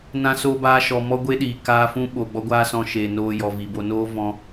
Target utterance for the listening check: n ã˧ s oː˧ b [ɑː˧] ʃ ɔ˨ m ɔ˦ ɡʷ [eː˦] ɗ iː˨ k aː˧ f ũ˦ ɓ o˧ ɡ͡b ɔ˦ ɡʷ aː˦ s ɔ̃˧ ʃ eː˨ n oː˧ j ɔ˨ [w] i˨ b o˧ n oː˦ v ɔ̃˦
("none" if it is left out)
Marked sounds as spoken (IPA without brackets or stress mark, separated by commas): aː˧, e˦, v